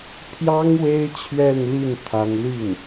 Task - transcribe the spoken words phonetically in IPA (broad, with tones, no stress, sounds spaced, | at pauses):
pʰ j ɑ˥ ŋ w e˥ ɪ̯ t͡ɕʰ ɥ ɛ˥˧ n l i˥˩ n t̪ʰ a˥ n l y˥˩ n